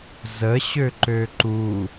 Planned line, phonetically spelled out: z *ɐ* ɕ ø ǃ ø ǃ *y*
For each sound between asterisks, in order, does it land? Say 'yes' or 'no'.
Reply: no, no

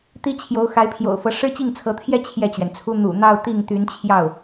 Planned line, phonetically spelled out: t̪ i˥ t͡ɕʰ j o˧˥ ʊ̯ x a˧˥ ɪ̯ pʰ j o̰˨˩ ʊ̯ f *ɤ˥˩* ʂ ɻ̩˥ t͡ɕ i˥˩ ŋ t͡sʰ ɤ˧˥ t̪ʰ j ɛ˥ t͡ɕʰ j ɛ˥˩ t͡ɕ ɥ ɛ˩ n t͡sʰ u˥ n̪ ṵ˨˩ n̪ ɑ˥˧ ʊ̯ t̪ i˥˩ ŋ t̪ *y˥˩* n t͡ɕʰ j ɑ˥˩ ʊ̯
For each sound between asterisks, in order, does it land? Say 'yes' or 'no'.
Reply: no, no

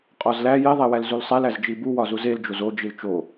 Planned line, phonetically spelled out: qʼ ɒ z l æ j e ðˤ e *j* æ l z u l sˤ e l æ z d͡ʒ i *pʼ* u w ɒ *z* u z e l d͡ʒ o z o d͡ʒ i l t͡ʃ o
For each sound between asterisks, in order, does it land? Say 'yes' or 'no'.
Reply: no, no, yes

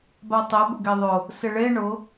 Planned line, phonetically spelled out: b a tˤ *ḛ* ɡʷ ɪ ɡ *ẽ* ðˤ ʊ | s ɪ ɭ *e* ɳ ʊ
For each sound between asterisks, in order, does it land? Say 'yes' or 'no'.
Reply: no, no, yes

